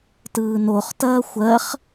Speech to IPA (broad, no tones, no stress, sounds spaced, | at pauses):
t ɯː n o χ t ɐː xʷ ɜ χ